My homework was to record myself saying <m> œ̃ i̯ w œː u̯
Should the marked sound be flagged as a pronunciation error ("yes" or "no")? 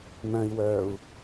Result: no